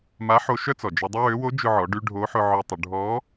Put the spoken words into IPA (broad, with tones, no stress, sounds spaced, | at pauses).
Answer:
m a˧˥ ħ o˧ ʃ œ˥ t͡s ɔ˩ d͡ʒ ɔ˧ dˤ ʊ˥ w ø˧˥ w o˧˥ d͡ʒ ʊ˧ ʕ ɔ˩˧ ɖ y˧ ɖʱ o˧˥ ħ ʊ˧ ʕ œ˧ tˤ ʊ˩˧ ɖʱ ɔ˧˥